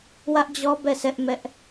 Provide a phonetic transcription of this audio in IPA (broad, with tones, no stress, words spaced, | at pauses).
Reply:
wä˦ʔd͡ʑɔ˦bɛ˦˨sʰɛ˦ʔ mɛ˦ʔ